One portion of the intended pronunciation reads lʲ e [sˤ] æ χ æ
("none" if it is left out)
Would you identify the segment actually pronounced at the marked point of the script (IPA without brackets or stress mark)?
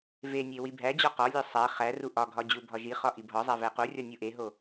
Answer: sˤ